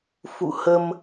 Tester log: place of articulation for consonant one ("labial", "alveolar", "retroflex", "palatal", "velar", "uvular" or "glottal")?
labial